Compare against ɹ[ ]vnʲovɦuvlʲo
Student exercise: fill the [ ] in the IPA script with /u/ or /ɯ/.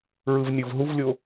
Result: ɯ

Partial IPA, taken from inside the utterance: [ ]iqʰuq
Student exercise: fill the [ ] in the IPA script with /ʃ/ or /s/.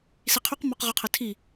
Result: s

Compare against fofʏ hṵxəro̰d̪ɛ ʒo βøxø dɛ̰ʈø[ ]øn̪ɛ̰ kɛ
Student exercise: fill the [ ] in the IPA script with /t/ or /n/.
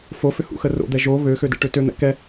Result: t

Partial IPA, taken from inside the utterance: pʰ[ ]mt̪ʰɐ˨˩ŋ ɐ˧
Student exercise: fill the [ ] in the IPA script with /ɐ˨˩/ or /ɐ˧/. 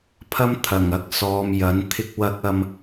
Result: ɐ˧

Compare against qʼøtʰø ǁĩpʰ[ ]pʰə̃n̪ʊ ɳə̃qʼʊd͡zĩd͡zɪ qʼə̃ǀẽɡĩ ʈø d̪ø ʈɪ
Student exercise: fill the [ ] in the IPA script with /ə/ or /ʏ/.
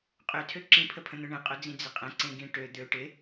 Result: ə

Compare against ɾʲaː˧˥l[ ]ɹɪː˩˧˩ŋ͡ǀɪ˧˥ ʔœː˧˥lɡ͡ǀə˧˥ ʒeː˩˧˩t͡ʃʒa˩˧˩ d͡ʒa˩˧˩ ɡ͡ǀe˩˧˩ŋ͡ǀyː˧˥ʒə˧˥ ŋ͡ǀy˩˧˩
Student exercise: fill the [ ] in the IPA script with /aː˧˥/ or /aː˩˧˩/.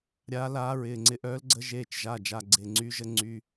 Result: aː˧˥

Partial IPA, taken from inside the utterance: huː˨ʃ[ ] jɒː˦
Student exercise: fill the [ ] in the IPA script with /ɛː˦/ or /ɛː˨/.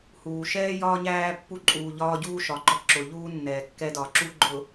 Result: ɛː˦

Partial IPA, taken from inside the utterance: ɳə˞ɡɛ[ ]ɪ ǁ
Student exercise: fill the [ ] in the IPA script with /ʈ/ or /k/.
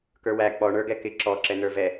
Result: k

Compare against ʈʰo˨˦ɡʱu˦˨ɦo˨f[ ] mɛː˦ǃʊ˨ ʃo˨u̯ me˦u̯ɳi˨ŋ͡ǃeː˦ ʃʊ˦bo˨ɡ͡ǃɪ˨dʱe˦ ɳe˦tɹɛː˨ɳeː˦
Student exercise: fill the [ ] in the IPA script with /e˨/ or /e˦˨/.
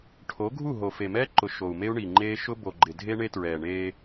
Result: e˨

